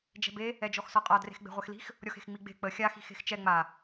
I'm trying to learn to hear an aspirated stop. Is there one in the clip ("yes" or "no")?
no